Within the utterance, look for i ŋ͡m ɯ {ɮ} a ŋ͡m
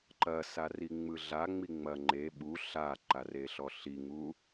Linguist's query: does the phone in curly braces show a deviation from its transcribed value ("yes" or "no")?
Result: no